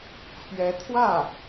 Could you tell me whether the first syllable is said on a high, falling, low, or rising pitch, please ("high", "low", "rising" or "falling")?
rising